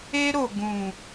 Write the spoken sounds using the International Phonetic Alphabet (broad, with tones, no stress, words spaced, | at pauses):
e˧ ɾo˨ ɡũ˨